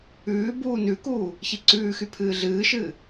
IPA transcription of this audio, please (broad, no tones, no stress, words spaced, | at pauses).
ʉː buːnʉkuː | çiǀʉːxy pʰɨːɮɨːʃɨː